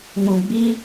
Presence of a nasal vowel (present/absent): present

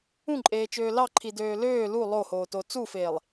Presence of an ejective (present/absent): present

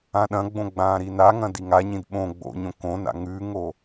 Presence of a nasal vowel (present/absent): present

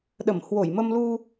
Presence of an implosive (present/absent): present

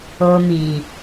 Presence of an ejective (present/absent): absent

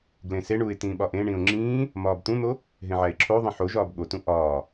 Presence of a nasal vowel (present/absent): present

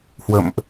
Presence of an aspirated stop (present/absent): absent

